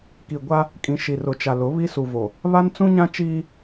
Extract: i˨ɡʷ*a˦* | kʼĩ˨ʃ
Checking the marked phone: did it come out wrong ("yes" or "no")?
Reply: no